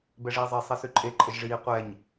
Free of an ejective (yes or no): no